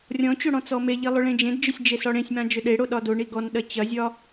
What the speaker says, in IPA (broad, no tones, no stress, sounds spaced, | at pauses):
rʲ ɔ̃ t͡ɕ o ɽ ɔ̃ t͡s ɔ m e ʎ i lˠ ʏ ɭ ẽ d͡ʒ ẽ d d͡ʒ ʏ sʲ d͡ʒ e s ɔ ɽ ẽ sʲ m ã d͡ʒ ʏ ɗ e ɽ o ɗ ɒ d o ɳ i ɡ ɔ n ɗ ɐ t͡ɕ ɐ zʲ ɒ